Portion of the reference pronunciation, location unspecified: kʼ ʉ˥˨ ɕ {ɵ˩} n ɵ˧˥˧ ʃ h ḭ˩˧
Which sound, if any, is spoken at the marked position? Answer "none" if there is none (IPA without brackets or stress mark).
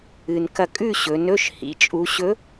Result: ɵ˩˧